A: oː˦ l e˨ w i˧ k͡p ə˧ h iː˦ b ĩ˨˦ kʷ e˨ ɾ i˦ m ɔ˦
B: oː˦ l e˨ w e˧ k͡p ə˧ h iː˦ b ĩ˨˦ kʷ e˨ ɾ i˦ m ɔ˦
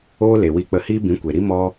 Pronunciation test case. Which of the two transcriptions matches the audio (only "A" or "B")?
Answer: A